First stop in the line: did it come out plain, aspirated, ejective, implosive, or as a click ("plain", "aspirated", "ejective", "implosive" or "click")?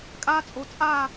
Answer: ejective